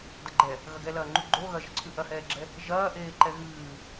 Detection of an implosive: absent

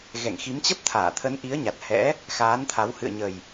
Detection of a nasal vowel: absent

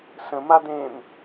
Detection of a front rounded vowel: absent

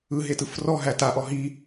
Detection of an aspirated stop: absent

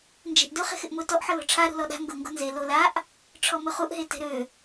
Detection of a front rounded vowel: present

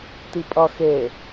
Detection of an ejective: present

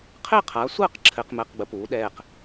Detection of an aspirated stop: present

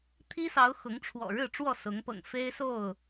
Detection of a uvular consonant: absent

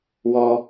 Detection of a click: absent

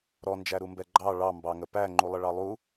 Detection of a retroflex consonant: present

